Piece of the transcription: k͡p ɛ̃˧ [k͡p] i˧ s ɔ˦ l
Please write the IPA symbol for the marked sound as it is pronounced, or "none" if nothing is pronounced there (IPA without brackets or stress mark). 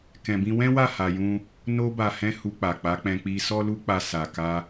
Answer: k͡p